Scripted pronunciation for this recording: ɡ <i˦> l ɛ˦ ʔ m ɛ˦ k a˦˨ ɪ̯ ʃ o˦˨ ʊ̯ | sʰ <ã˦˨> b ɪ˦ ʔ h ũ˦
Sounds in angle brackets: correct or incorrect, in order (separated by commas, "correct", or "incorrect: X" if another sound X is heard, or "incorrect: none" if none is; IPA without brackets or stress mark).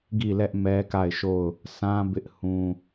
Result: incorrect: i˦˨, incorrect: ã˦